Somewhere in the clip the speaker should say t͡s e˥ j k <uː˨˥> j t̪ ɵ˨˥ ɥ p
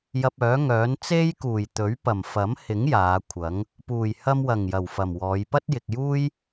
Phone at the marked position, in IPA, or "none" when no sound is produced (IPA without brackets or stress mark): uː˨˩